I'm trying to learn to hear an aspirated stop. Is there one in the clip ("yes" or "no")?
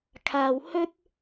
yes